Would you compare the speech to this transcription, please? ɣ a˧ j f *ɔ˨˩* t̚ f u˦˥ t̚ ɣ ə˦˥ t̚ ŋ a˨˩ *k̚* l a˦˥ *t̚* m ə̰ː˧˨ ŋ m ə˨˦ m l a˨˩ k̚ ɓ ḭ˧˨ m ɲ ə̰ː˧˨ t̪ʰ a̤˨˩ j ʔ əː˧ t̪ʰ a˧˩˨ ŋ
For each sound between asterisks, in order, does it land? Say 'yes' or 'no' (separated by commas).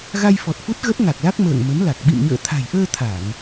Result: yes, yes, no